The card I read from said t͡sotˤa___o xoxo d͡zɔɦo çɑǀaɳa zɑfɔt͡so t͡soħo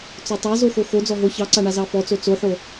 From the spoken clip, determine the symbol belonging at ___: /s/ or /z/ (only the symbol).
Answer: z